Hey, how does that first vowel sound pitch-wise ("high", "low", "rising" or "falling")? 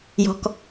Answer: low